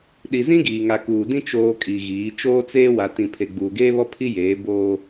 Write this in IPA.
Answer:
ɗ i˨ z ĩ˦ ɡ iː˨ ŋ a˨ k uː˨ d ĩ˦ t͡ʃ oː˨ kʼ i˨ ɣ iː˨˦ t͡ʃ oː˦ t͡s eː˦ w a˨ t ĩ˨ pʰ e˨ ɡ͡b uː˨ ɡ eː˦ β ɔ˦ pʰ i˦ j eː˨˦ b oː˦

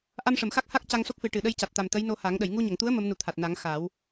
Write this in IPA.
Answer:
ʔ a˧ m ʂ ə˨˩˨ m x a˦˥ k̚ h a˦˥ k̚ c a˧ ŋ s o˦˥ k̚ f ɨ˨˩ ʈ ɨ˨˩ ɗ ə˧ j c a˨˩ t̚ t̪ a˨˩ m t̪ ə˧˥ j n o˧ h a˨˩˦ ŋ ɗ ə˨˩˨ j ŋ u˧ ɲ ə˨˩˨ ŋ t̪ u˧˥ ə̯ m ə˧˥ m n u˨˩ t̪ʰ a˨˩ t̚ n a˨˩˦ ŋ x a˨˩˦ w

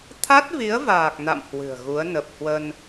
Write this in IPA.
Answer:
t̪ʰ a˦˥ t̚ v i˨˦ ə̯ v aː˨˩ k̚ n a̰˧˨ m h w ɨ̤˨˩ ə̯ ɣ u˨˦ ə̯ n ə˨˩ p̚ h w ə˧ n

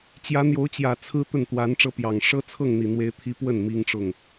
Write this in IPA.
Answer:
t͡ɕ j ä˧˥ n̪ j o˧˥ ʊ̯ t͡ɕ j ä˨˩ t͡sʰ ɹ̩˥ t̪ ə˥˩ n t̪ w a˧˥ n ʈ͡ʂ ɤ˥ p j ɑ˨˩ ŋ ʂ ɤ˥ t͡sʰ ɤ˥˩ ŋ n̪ i˨˩ n̪ w e˥ ɪ̯ t̪ʰ i˥ p w ə˥˩ n m i˥ ŋ ʈ͡ʂ ʊ˥˩ ŋ

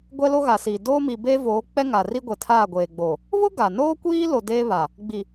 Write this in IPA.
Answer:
ɡʷ ɛ˦ l o˦ ɣ a˨ s iː˨ d oː˦ m i˨ b eː˦ v oː˨˦ k͡p ɛ˦ ŋ a˨ r i˦ ɡʷ ɛ˨ tʰ aː˦˨ ɡʷ eː˨ ɡ͡b o˨ | β ʊ˦ ɡ a˨ n oː˦ kʷ iː˦ l o˨ d eː˦ β a˨ | ɡ͡b i˨

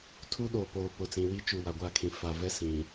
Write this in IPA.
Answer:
tʰ u˦ ɗ oː˨ p oː˨ p ʊ˨ t͡s ĩ˨ w i˦ t͡ʃ u˨ w a˨ ɡʷ a˦˨ kʰ ĩ˨ f a˨ v ɛ˦ s ĩ˨

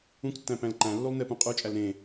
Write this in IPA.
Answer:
ũ k tː æ̃ p æ̃ l ǃ æ̃ lː u lˠ n e p ũ qʼ u t͡ʃʼ æ l ɾ ẽ

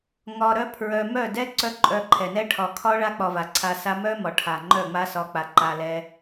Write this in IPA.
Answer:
ŋ ɒ˧ ɾ œ˦ pʰ ɹ œ˧ m œ˦˨ d ɛ˦ ǀ œ˦ ǃʼ œ˧ ǃʰ ɛ˨ n ɛ˦ ʈʰ ɒ˨ kʰ ɒ˦ ɭ a˦ k͡p ɒ˧ v a˨ ǀʰ a˧ s a˦ m œ˦ m ɒ˨ ʈʰ a˨ ŋ͡ǃ œ˦˨ ŋ͡m a˦ s ɒ˧ k͡p a˨ ǃ a˧ l ɛ˧

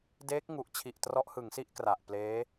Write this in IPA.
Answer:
d eː˦˥ k̚ ŋ u˨˩ ʔ t͡ɕʰ i˨˩ ʔ t r ɔ˦˥ ʔ h ɯ˩˦ ŋ s i˥˩ ʔ k r a˨˩ ʔ p l eː˦˥

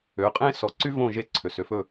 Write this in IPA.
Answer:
ø˩˥ qʼ ẽ˥ s ɔ˩˥ ǀ y˥ v õ˥˩ ʒ e˧ ǀʰ ø˩ s ø˧ f ɵ˥˩

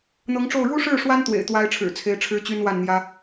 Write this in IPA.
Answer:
n̪ ɤ˧˥ ŋ ʈ͡ʂ o˥˩ ʊ̯ ɻ u˥ ʂ ɻ̩˥˩ ʂ w a˥ n t̪ w ḛ˨˩ ɪ̯ t̪ w a˥ ɪ̯ ʈ͡ʂʰ ɻ̩˨˩ t͡sʰ e˧˥ ɪ̯ ʈ͡ʂʰ ɻ̩˥ t͡ɕ y˥ n w a˥˩ n n̪ j ä˥

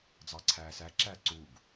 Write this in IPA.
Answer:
d͡z ɑ ǀʰ æː s æ ǁ æ ǀ u ɡ

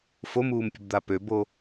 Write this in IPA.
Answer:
f o m uː m pʲ ə̤ b d̪ a p ø b o

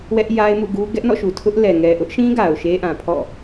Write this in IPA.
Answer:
w ɛ˦ ʔ j a˦ ɪ̯ m ṵ˦˨ ɡ u˦ ɡ ɛ˦ ʔ n ɔ̰˦˨ ʃ u˨ tʰ ʊ˦ ʔ l ɛ˨ ŋ ɛ˨ ʔ ʊ˦ ʔ ʃ ĩ˦ ɡ a˨ ʊ̯ ʃ e˦ ʔ ã˨ pʰ ɔ̰˦˨

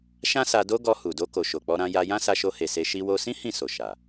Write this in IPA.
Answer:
ʃ ã˦ s a˧ d o˦ ɡ ɔ˧ h u˨ d o˧ k o˨ ʃ o˨ k͡p ɔ˧ ɾ ã˧ j a˧ j ã˦ s a˧ ʃ o˧ h e˨ s e˧ ʃ i˧ w o˧ s ĩ˦ h ĩ˦˨ s o˨ ʃ a˨

